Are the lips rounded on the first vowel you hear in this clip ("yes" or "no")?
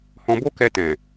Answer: yes